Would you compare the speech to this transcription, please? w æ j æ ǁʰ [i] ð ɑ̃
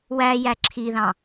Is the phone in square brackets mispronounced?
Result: no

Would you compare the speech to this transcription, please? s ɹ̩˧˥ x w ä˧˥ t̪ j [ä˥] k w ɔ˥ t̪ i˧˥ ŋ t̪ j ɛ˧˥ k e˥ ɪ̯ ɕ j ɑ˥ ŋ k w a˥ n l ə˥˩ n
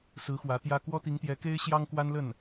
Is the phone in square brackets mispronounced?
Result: no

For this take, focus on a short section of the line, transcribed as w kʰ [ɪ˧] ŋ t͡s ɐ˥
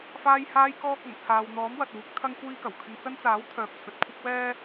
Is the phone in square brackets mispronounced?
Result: no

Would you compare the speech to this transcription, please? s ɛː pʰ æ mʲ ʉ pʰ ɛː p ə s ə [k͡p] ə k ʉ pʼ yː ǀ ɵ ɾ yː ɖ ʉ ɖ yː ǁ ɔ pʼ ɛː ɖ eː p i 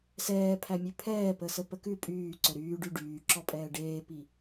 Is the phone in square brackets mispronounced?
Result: yes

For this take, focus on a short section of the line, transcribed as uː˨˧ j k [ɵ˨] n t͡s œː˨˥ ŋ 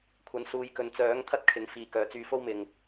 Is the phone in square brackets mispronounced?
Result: no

